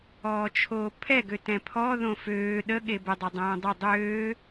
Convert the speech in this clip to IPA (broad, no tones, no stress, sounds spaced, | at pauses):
ɔː t͡ʃʰ oː pʰ ɛ ɡ ø t ɛ̃ pʰ ɔ ð õ f øː ɗ ə ɠ e b ə dˤ o dˤ õː dˤ ø dˤ øː